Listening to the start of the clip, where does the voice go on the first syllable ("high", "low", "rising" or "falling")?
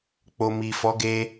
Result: low